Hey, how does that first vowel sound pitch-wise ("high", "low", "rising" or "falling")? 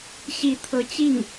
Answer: rising